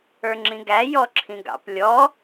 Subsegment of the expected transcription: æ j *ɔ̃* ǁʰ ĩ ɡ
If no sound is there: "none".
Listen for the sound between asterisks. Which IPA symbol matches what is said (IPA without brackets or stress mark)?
ɔ